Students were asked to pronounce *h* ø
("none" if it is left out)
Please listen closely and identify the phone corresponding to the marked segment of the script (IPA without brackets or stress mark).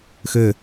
x